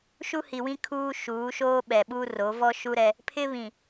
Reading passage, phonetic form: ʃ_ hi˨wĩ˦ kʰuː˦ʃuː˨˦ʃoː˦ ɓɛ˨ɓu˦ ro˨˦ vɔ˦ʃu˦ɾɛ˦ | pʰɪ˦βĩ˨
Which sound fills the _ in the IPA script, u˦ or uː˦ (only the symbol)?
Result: u˦